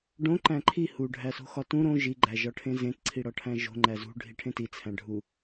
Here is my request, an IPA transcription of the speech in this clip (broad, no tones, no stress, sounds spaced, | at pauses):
ɖ õ ǃ æ̃ ǃʰ i h u ɖʱ æ s o̤ x ɒ t ũ ɾ õ ʒ i ɡ͡ǃ æ ʒ ɒ ʈʰ ẽ z ẽ t ǀʰ i ɽ ɒ ʈʰ æ̃ ʒ o̤ ŋ͡ǃ æ z ṳ ɖʱ i ʈʰ ẽ t i t͡sʰ æ̃ ɖʱ u